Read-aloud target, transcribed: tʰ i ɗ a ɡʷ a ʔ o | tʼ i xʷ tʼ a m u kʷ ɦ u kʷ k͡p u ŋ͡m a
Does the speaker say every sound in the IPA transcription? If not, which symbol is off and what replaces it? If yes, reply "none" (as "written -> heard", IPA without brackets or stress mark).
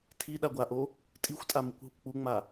none